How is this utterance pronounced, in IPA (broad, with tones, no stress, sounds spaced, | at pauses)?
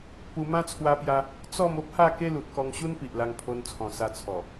p u˧ m ã˦ t͡sʰ w a˦ p j a˦ | t͡s ɔ˥˧ m o˦ p̚ h a˥˧ k e˦ l u˨ t̚ k ɔ˧ ŋ ɕ u˦ n p i˨ ʔ l a˧ ŋ pʰ o˧ n t͡sʰ ɔ̃˨˩ s a˧ t͡sʰ ɔ˨˩